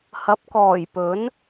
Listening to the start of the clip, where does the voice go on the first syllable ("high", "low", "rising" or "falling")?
rising